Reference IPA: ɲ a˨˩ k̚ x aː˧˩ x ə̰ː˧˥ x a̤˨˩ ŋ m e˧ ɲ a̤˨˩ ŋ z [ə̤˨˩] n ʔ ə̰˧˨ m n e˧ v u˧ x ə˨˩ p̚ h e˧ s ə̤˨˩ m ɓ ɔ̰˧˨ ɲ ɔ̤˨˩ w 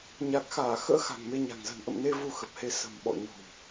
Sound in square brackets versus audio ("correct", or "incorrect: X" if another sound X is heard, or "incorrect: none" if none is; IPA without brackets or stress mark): correct